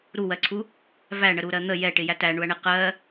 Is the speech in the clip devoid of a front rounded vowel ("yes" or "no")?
yes